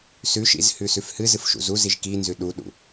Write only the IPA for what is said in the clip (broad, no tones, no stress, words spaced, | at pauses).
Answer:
sʉʃḭz hʉsʉfhɨzɨf ʃṵzuziʒ kinzʉ ɗuɗṵ